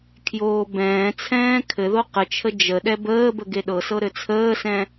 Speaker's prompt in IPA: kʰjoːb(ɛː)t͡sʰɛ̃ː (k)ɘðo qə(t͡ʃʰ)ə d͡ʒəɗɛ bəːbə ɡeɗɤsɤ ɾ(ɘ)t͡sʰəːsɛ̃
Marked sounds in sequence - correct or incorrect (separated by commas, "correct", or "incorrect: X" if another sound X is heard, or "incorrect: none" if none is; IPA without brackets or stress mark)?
incorrect: ɛ̃ː, incorrect: kʰ, correct, correct